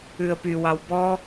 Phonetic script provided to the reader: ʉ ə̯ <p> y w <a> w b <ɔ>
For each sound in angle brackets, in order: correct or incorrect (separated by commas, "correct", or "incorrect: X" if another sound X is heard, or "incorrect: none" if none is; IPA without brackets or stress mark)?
correct, incorrect: ɑ, correct